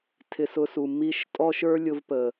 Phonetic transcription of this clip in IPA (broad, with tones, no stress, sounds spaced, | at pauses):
tʰ ɪ˦ s ʊ˦ s u˧ m i˦ ʃ tʼ ɔ˦ ʃ ə˞˦ lʲ ʊ˧ v p ə˨